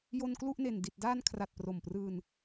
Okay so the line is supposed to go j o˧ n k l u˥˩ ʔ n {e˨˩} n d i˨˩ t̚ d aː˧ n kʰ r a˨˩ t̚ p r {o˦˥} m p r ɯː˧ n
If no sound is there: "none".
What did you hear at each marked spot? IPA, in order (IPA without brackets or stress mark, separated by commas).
e˨˩, o˨˩